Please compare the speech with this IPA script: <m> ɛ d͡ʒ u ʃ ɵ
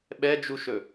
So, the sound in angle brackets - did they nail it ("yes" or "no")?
no